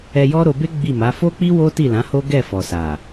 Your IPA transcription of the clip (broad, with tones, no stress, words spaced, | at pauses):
ɛ˧jɔ˦ɾo˧be˦ ɡ͡bi˦˨ma˨˦ fo˦k͡pi˦ wo˦ti˦˨lã˨˦ho˦ ɡɛ˦˨fɔ˨ sa˨